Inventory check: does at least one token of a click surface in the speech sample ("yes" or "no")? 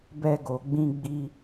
no